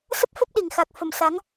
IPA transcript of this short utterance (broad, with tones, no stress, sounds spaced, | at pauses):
s ə˦˥ p̚ f ə˦˥ p̚ ɗ i˨˩ ŋ x a˨˩ k̚ f ə˧˩ m s a˨˦ ŋ